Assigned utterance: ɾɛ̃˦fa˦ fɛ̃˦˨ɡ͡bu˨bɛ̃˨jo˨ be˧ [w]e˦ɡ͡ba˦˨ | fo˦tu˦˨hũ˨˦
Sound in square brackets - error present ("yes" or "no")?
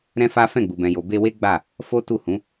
no